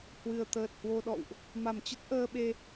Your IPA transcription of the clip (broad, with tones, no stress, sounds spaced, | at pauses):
h w ɨ˨˩ ə̯ t̪ əː˨˩ t̚ h w o˧ ɗ ɔ̰˧˨ w ʔ | m a˧˩ m t͡ɕ ə˦˥ t̚ ʔ əː˧ ɓ e˧